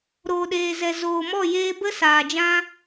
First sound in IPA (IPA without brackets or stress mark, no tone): ɾ